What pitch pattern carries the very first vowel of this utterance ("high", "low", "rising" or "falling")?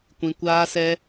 low